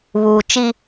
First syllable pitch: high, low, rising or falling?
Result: low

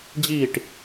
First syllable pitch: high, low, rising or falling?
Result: falling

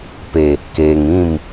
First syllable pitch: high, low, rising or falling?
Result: low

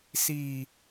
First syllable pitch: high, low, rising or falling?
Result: low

